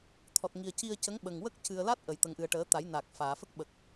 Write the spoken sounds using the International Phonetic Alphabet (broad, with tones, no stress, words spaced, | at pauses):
t̪ʰɔ˨˩t̚ŋi˨˩ə̯ ci˧ə̯cə˧˥ŋɓə˨˩ŋ wə˦˥k̚cɨ˨˩ə̯ la˦˥t̚ʔə˨˩˨j t̪ə˨˩˦ŋʔɨ˨˩ə̯ ʈəː˨˩˦ t̪a˨˩˦jnaː˨˩k̚ faː˨˩˨fə˦˥k̚ɓə˨˩k̚